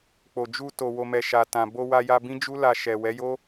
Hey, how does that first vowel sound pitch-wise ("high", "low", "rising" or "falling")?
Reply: low